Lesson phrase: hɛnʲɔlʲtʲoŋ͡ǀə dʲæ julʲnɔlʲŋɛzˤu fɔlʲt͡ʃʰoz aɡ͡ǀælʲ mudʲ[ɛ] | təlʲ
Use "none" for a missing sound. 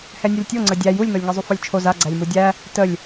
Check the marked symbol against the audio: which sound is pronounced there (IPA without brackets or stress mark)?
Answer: æ